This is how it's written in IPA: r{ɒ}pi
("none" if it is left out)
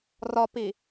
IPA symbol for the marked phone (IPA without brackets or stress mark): ɒ